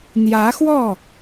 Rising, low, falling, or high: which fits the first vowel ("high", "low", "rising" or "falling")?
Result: rising